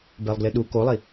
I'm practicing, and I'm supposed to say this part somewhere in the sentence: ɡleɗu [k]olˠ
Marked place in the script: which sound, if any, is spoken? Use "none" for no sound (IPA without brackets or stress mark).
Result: k